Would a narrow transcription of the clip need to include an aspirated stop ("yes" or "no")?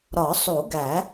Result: no